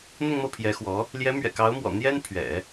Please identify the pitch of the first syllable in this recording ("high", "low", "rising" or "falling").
falling